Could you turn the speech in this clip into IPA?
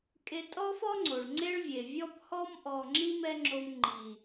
kʼ e˧ tʼ ɔ˦ f ɔ˦ ŋ͡ǀ o˨ ɭ ŋ͡ǀ e˦ ɭ vʲ e˨ vʲ ɔ˧ p h ɔ˧ m ʔ ɔ˨ ŋ͡ǁ i˧ m ɛ˦ ŋ͡ǁ o˧ m ŋ͡ǃ i˨

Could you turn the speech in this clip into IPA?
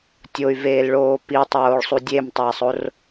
tʲ o y̯ v eː l ɭ oː p i tˤ oː ɭ sˤ u dʲ e m tˤ eː sˤ o r

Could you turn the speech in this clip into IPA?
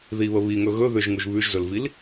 ð i β ə β i ŋ ɵ ɣ ɵ ð ʏ ʒ ŋ u ʒ β ʉ ʒ z ɵ l v i l

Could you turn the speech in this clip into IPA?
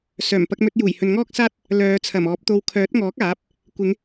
s œː˨˩ m p ɐ˧ k̚ m ɵ˧ t̚ j uː˨˩ j h ɵ˨ n ŋ ɔː˥ k̚ s aː˥ t̚ | l œː˨˧ t͡sʰ ɐ˨˩ m ɔː˨˥ p̚ t̪ o˧ w kʰ œː˨˥ t̚ ŋ ɔː˨˥ k̚ aː˨˥ p̚ | kʷ ɪ˨˧ ŋ

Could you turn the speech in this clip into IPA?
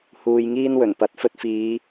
h uː˧ j ŋ iː˥ n w ɵ˨˩ n p ɐ˨˥ t̚ f ɵ˧ t̚ f iː˨˧

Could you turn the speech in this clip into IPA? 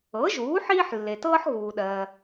ɤ˩˥ ʒ uː˩˥ ħ iː˥ ħ lː e˩ t ɤː˥ ħ ɣ uː˩ ɗ ɜː˩

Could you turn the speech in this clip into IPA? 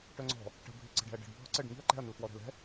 ʈ œ ŋ͡ǀ ɔ̤ | ʈ ə̤ bʱ i ǀ ə̤ ɖ ɛ̤ ɐ̯ ɖ ə̤ ɖ bʱ ɔ ǀ ə ɖ ŋ i̤ ɐ̯ ǃ ɛ̤ ɐ̯ n ə l f w ɔ ɾ ɛ̤ l ɛ̤

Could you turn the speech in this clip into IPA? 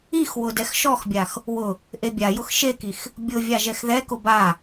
i x w ʊ d ɛ x ʃ ɔ x bʲ a x | w ʊ | ʔ e bʲ a j ʊ x ʃ e k i x | bʲ ʊ vʲ a ʒ ɛ x ð ɛ k ʊ b a

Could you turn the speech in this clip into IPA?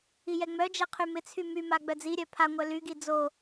i j ɛ ŋ͡m œ d͡ʒ ɛ qʰ y m ɪ t͡sʰ y m y m a ɡ͡b œ d͡z i ɾʲ œ pʰ a ŋʷ œ l y ɡ i d͡z o

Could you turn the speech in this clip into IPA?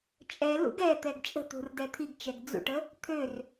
t͡ʃʼ ɛ l ṵ ɡ ɛ t̪ ɛ ɡ t͡ʃʼ ə̤ t̪ ṳ r d ɛ t̪ʰ i ɡ t͡ʃ ɛ ɡ d͡z ṵ ʈ ə | t̪ʰ ø r

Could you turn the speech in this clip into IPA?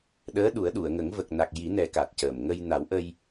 ɗ əː˧˥ ɗ u˨˩˦ ə̯ ɗ u˨˩˨ ə̯ ŋ ə˨˩˦ ŋ v ə˨˩ k̚ n a˨˩ k̚ j i˨˩˦ n ɛ˨˩˦ k a˨˩ t̚ c əː˨˩ m ŋ ə˧ j n a˨˩˦ w ʔ ə˧ j

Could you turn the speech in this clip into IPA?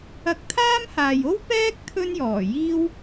ɐ˧ k̚ t̪ʰ aː˥ m h aː˨ j o˥ w p ɛː˥ k̚ t̪ʰ ɵ˥ n j ɔː˨˩ j iː˥ w

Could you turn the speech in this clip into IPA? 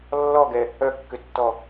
lː ɔ ɡ ɛ | œ kː ʏ tː ɔ

